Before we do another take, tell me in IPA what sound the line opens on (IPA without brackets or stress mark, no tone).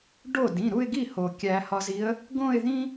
ɖ